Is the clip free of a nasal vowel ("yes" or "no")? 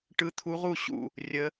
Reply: yes